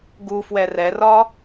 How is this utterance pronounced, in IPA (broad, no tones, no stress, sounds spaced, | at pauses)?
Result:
ɡ u f w ɛ r ɛ r ɒ